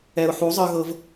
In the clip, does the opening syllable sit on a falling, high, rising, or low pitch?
low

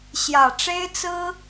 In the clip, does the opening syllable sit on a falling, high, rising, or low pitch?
low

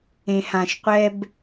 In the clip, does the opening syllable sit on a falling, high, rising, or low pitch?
low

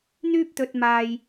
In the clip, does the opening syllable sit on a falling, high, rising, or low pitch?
high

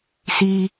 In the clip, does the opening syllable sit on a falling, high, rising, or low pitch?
high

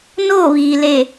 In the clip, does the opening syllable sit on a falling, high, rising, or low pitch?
falling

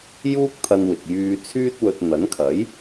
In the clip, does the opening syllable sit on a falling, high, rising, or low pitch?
high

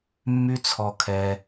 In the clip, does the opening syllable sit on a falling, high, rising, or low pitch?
high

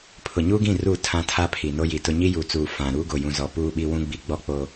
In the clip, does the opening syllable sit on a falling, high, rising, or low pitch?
low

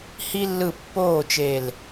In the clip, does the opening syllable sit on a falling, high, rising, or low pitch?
high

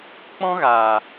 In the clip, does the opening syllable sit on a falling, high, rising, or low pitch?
high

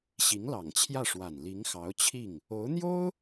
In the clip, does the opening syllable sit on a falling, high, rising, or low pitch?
rising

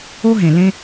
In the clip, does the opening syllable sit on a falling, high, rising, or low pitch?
high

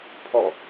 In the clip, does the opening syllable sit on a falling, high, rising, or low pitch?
falling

